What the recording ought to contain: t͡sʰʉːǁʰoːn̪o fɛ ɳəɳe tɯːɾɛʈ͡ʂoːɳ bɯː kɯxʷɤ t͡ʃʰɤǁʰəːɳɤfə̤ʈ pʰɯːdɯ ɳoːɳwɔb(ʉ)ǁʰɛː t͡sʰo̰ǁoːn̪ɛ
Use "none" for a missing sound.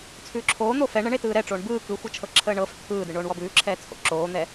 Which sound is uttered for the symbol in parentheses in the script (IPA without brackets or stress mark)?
ʉː